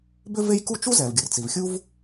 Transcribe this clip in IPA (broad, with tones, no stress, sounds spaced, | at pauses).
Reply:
b ʏ˥ v e˥ j k u˥ t͡ʃ u˥ z ɛ˩ v ɡʲ ʊ˩ r t͡s i˩ v xʲ u˥ v